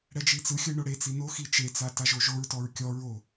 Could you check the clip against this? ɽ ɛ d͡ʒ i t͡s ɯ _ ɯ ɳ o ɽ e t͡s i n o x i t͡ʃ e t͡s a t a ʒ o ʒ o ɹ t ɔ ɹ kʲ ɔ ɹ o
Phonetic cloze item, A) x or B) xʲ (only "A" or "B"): B